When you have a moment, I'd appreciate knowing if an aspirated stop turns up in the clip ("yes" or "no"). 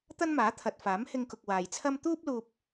yes